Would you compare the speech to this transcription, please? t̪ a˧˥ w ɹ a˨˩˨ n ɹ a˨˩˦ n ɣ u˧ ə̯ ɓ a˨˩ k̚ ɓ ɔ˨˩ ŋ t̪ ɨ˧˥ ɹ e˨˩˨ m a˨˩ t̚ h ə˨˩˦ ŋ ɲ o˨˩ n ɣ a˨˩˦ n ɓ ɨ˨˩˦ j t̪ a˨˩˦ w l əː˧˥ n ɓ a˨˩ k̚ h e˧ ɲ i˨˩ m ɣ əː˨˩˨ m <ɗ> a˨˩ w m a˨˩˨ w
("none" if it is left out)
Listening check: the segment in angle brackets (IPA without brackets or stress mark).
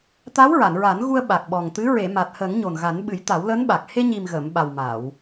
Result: ɓ